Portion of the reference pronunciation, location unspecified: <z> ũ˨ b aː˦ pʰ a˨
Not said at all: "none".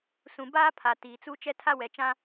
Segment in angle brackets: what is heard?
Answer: s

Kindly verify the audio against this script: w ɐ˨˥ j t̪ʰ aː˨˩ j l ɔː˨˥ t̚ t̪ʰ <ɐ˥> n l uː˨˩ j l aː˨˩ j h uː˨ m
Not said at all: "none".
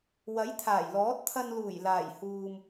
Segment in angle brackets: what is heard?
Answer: ɐ˧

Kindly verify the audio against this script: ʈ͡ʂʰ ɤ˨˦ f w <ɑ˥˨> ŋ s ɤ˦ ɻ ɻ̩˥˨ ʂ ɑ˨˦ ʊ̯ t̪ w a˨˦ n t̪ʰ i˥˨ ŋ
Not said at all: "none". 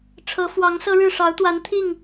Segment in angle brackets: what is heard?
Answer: ɑ˨˦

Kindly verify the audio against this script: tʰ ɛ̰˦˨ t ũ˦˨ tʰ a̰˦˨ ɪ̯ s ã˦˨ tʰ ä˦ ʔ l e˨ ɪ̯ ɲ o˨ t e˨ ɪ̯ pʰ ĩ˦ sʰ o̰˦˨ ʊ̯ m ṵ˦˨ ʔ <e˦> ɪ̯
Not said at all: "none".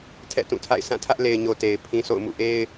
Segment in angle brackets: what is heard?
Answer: e˦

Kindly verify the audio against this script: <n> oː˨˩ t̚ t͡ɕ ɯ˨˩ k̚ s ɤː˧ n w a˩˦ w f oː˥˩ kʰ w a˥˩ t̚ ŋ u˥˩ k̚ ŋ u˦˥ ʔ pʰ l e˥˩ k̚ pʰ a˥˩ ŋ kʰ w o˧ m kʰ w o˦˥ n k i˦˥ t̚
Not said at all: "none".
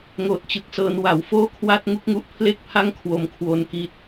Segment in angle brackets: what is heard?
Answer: ŋ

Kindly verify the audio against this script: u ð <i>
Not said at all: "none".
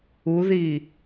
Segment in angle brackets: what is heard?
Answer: i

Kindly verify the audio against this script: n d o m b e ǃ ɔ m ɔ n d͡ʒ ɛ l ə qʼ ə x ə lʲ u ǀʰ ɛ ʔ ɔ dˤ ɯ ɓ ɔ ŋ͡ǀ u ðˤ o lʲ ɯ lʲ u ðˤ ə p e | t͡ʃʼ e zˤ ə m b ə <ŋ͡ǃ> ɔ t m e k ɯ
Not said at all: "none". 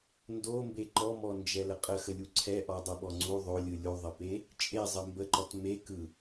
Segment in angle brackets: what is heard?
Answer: ǃ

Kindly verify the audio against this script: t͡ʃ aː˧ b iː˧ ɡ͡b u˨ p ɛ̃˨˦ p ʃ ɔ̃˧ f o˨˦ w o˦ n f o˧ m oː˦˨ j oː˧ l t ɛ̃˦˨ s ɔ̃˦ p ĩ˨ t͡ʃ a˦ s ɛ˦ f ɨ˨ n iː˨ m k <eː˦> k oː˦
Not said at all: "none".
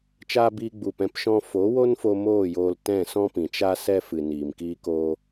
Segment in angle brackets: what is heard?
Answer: iː˦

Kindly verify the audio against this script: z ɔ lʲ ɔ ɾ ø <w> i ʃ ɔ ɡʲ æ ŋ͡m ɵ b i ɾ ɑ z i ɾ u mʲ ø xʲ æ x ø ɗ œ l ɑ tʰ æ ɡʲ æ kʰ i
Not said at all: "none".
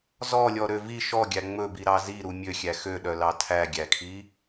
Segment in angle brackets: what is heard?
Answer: v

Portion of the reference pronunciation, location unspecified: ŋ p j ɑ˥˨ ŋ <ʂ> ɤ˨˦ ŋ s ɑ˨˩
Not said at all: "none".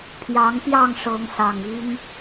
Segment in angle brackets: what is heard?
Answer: ʂ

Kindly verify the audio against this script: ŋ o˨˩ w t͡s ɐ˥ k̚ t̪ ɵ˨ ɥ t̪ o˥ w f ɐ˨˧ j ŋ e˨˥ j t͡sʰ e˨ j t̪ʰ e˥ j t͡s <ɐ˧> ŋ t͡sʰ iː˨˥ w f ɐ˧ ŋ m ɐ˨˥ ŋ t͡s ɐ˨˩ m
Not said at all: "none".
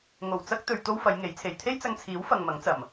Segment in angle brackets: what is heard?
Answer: ɐ˧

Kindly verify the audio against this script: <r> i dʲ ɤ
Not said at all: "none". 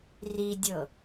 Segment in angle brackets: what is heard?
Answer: r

